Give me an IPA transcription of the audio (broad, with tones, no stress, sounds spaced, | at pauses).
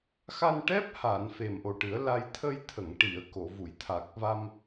x a˧ n ʈ ɛ˦˥ p̚ h a˨˩˨ n f e˨˩ m ʔ o˨˩ ʈ ɨ˨˩˦ ə̯ l a˧ j t̪ʰ ə˧ j t̪ʰ ə˨˩˨ ŋ ʈ i˨˩˨ ə̯ k o˨˩˨ v u˨˩˨ j t̪ʰ a˨˩ k̚ v a˧ m